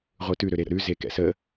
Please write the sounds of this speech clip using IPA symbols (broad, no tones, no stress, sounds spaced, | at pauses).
ʁʷ ɯ t ʉ ɾ ø ɾ e ɾ ə̰ ɾ ʉ z e k ɛ̰ s ə